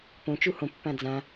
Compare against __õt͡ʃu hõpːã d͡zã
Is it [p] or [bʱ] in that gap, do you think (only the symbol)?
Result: p